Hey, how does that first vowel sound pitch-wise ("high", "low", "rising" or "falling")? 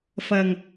low